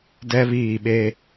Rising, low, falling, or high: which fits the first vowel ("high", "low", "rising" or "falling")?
high